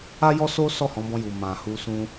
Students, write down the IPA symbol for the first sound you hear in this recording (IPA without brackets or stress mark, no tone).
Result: a